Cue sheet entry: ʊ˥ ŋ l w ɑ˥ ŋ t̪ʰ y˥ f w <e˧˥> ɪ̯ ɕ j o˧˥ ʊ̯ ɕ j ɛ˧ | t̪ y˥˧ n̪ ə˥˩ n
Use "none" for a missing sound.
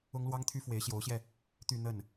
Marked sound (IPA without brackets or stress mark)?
e˧˥